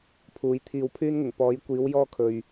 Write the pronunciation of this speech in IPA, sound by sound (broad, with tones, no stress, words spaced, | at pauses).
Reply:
pʰuː˨˥jt̪ʰiː˧wpʰyː˥nŋɪ˨˩ŋ pɔː˨˥jkʷiː˨˥w jɔː˥kʰɵ˨ɥ